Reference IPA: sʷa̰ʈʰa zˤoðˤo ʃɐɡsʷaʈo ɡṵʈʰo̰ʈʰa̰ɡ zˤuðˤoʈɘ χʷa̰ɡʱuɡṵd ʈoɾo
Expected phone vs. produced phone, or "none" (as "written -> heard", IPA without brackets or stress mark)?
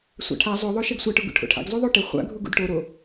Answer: none